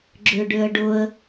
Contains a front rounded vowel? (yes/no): yes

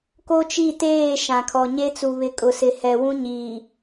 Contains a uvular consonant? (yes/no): no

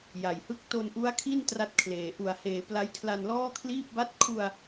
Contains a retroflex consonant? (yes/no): no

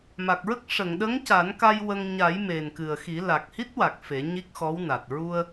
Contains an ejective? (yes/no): no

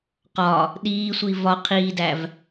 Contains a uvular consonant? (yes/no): yes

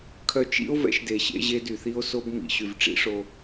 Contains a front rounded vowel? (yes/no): yes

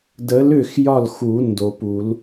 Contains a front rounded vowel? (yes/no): yes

